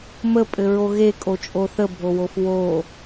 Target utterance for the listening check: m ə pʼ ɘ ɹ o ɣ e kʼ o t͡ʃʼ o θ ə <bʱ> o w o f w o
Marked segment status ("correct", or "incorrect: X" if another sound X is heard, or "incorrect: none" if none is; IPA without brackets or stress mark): correct